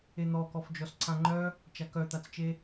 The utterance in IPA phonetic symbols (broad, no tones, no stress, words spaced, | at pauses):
en̪ɔkɔfd͡ʒɔs ǀãŋ͡ǃœ | t͡ʃakœt̪at͡st͡ʃe